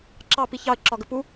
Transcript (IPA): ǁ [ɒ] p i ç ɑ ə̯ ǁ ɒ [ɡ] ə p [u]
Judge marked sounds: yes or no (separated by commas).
no, yes, yes